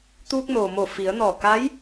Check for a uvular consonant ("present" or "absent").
absent